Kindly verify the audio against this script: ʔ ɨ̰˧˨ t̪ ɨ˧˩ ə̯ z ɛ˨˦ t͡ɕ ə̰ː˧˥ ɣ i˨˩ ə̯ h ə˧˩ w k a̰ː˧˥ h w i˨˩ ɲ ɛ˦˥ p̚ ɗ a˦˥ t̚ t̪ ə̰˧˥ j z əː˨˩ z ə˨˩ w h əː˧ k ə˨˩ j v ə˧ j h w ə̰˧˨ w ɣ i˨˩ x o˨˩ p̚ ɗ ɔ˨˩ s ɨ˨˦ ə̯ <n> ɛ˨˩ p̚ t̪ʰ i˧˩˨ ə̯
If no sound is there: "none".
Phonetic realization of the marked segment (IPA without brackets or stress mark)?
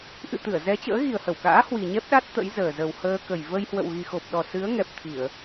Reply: ŋ